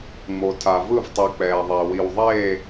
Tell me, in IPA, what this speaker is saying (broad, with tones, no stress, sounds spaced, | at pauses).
ŋ͡m o˧ tʰ a˧ v ɯ˥˧ v tˤ i˧ k͡p ɛː˧ ðˤ e˧ w i˧ w ðˤ eː˥˧